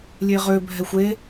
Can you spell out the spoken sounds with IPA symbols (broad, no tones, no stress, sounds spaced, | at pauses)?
lʲ e ʁ ø bʱ ɛ xʷ e